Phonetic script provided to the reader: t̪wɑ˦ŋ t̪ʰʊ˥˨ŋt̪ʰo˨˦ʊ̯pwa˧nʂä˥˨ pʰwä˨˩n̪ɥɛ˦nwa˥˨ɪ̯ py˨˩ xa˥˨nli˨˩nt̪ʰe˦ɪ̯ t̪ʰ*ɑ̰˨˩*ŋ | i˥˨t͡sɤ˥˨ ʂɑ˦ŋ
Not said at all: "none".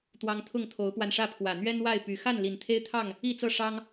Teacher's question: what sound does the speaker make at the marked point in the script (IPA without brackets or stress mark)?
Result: ɑ˥˨